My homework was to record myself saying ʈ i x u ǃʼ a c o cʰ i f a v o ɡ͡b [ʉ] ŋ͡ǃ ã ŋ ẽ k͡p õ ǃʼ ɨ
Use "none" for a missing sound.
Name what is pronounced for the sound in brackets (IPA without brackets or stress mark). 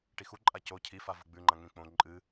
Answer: ʉ